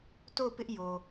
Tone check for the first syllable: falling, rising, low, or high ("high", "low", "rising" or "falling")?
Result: falling